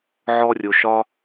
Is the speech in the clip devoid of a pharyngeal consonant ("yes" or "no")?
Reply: no